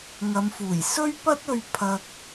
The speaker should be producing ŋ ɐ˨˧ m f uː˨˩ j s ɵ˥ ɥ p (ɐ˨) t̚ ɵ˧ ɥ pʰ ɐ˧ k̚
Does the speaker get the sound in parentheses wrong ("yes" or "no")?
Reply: yes